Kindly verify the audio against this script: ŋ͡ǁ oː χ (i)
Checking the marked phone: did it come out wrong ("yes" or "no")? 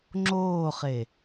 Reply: yes